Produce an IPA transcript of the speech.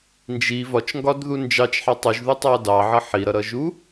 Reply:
n d͡ʒ i v ɒ t͡ʃ ŋ ɡ ɒ d ð u n d͡ʒ ɑ t͡ʃ ħ ɑ tˤ u ʒ ð u tˤ ɑ d ɑ ʕ ʌ ħ i ɾ ʌ ɾ ʌ ʒ u

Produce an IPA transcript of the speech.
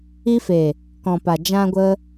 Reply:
i˧ f e˨ | k ɔ̃˨ p a˨ d͡ʒ ã˧ ɡʷ ə˧

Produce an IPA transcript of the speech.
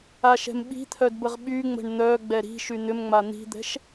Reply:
a ʃ ɛ̤ m ɓ i̤ t̪ʰ œ d b ə ʁ ɓ y ŋ͡m ə̤ ɳ n̪ œ ɡ͡b ɛ ɾ i̤ ʃ y n̪ ʏ m ŋ͡m a n̪ i̤ d̪ ɛ̤ ʃ

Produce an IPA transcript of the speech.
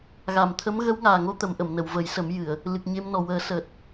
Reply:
ɣ a˨˩˨ m t̪ʰ ə˧˥ m ɣ ə˧˥ w ŋ aː˨˩ ŋ o˧ t̪ ə˨˩˦ m ʔ ə˨˩˨ m n ə˨˩˨ w v ə˨˩˦ j s ə˨˩˦ m j ɨ˨˩˨ ə̯ | l ɨ˨˩ k̚ ɲ e˧ m n ɔ˨˩ w əː˨˩˦ s əː˨˩ t̚

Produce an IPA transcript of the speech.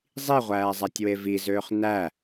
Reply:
zˤ i ʁʷ æː zˤ æ tʲ w e v i z øː χ n æ

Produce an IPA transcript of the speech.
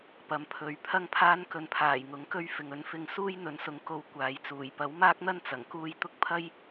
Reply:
p ɐ˨˧ m pʰ ɵ˨ ɥ pʰ ɐ˥ ŋ pʰ aː˥ n k ɵ˧ n pʰ aː˨˩ j ŋ ʊ˨˥ ŋ k ɵ˥ ɥ f ɪ˨ ŋ ɵ˨˥ n f ɪ˧ ŋ s uː˥ j n̪ ɵ˨˥ n s ʊ˨˧ ŋ k o˧ w kʷ aː˨ j t͡s uː˨˩ j p ɐ˨˥ w m aː˥ k̚ n̪ ɐ˥ n t͡s ɐ˨˩ ŋ k uː˥ j t̪ ʊ˥ k̚ pʰ ɐ˥ j

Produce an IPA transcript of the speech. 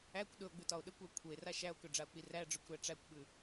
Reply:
æ kʷ ɗ ɵ o̯ ɡ͡b ʉ t ɒ o̯ ɗ ə kʷ æ kʷʰ ə e̯ r a ʃ æ o̯ k ɵ ɖ͡ʐ a o̯ k͡p i r æ ɖ͡ʐ ɵ kʷ ɾ æ ʈ͡ʂ æ kʷ ɓ ʉ

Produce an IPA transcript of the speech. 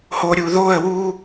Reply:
h o ɾʲ u ð o ə̯ w u

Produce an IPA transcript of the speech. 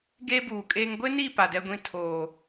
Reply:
ɡ eː˦ b uː˨ kʼ eː˦ ŋ ɡʷ ɪ˦ n i˦˨ p a˨ d ɛ˦ ɡʷ ĩ˦ tʰ oː˨

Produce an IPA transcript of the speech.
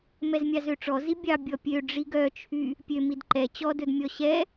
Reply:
m ɛ z mʲ ɑ z ø ʈ͡ʂ ɔ z i bʲ ɑ bʲ ɔ pʲ ø ɖ͡ʐ i ɡ œ t͡ʃʰ y | pʲ ø m i d ǃ ɛ t͡ɕ ɔ d ɵ d mʲ ɔ ɕ ɛ

